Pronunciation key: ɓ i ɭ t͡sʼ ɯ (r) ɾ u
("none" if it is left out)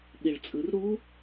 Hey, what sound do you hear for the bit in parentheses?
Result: r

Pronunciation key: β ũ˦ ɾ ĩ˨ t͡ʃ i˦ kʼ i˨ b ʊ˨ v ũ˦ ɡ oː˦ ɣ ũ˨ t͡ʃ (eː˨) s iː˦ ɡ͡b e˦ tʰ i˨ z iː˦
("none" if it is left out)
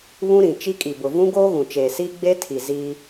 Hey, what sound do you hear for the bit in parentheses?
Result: eː˨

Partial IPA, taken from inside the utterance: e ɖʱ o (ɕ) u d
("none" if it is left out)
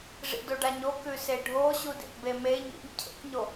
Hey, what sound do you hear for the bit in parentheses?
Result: ɕ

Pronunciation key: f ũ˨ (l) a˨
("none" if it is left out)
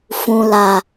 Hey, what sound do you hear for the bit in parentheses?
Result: l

